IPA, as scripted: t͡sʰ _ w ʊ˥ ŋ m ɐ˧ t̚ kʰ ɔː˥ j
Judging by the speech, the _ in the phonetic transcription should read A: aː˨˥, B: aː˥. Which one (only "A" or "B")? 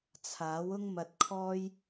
A